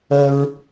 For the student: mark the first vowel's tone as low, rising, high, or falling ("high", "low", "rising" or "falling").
high